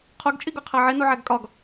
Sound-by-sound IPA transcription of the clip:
qʰoɡt͡ʃʼiɡoqʰæ ʕenuʕæɡ kʼɒɡ

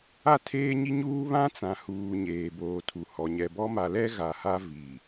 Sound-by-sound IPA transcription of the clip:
a˦˨tʰeː˦ɲi˦ɲuː˦ βã˦t͡sã˨huː˨ ɲeː˨boː˨tʰu˨hɔ˨ ɲɛ˨bɔ˦ ma˨lɛ˦ ɣa˨ha˦ vi˨

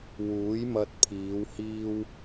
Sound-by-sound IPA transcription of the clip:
wuː˨˥jmɐ˧t̚pʰiː˨˧whiː˥w

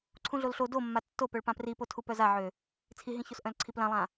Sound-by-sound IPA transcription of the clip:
ǀʰũɮolɬo domːa tːo pœɭpãpripo tʰupœzaʕø | t͡sʰiɦĩços ʔœ̃lǀʰiplãlˠã

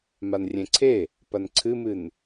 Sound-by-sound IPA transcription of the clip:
manrʲẽǀʰe | pɐnǀʰɨmɨn

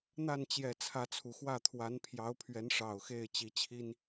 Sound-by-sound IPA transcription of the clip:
n̪a˥˨n t͡ɕjɛ˨˩ t͡sʰä˨˦t͡sʰu˨˩xwä˥˨ t̪ʰwa˨˦npʰjɑ˨˦ʊ̯pʰɥɛ˨˦n ʂɑ˨˩ʊ̯xe˥˨ɪ̯ t͡ɕi˨˦t͡ɕʰi˦n

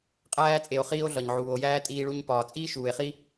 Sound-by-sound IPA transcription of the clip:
qʼæː˦t͡sʼe˨o̯χiː˦o̯ ɮɒ˨ɲʕuː˨o̯jæː˥ tʼiː˦ɭu˦ɲ pɒː˨t͡sʼiː˥ʃuː˨e̯χi˥

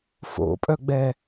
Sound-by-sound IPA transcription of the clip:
fo̰pʼœɡ͡bɛ

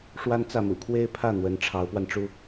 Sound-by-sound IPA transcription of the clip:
ʂwa˥nt͡sä˥˩mṵ˨˩ kʰwe˥ɪ̯pʰä˥˩ n̪wə˧˥nʈ͡ʂʰɑ˧˥ʊ̯pwa˧nʈ͡ʂu˥

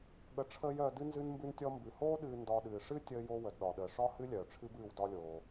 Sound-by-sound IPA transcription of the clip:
ɠə˨ʈ͡ʂʰəː˦j œː˨dɨ˦ nzɨ˦nmbɨ˦ntʲɔ˦ mbɨ˩hoː˥ɗɨː˨ ndɒ˨ɗɨː˩ʂɨ˥ tʲəː˦jo˦ wə˩dɗɒ˩ɗəː˩ ʂɒ˥ hɨ˥lʲœː˩ʈ͡ʂʰɨ˦b ɨː˨w dɒ˦lʲoː˩

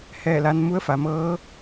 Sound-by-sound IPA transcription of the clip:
hɛː˥˨la˧˥n mu˧˥ə̯fa˩˧mɤː˧˥

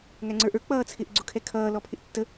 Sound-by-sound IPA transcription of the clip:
ŋæŋ͡ǀə˞ʔə˞ k͡pʌːt͡sʰɪʔ ɡ͡ǀʊkʰɛkʰʌː lɔpʰɪʔtːə

